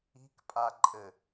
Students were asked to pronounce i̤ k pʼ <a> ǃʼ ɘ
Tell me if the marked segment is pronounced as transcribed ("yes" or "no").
yes